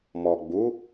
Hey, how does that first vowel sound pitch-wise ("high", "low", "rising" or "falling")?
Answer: low